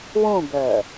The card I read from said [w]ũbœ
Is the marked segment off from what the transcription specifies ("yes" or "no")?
no